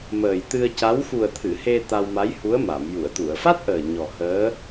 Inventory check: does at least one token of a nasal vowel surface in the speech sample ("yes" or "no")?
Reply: no